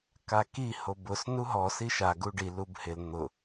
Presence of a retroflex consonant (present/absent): present